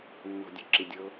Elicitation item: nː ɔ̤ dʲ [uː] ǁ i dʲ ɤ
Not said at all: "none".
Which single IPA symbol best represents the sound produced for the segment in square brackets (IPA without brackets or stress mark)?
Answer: u